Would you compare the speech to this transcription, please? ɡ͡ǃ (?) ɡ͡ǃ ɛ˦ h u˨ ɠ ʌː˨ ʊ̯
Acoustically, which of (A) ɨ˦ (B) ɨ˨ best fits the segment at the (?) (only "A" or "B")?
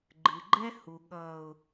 B